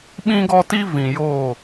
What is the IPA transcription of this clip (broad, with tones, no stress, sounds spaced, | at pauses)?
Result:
ɓ ĩ˦ ɡ ɔ˦ t i˦ v ĩ˨ j oː˦˨